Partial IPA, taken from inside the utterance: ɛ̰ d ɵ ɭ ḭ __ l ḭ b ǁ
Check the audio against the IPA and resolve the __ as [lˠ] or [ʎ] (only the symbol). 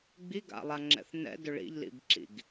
ʎ